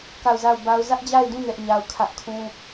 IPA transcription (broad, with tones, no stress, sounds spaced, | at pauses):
k a˦˨ ʊ̯ z a˦˨ ʊ̯ b a˦ ʊ̯ z ä˦ ʔ d͡ʑ a˦˨ ɪ̯ d ũ˦˨ n ɛ˦ ʔ ɲ a˦ ʊ̯ kʰ ä˦ ʔ kʰ ũ˦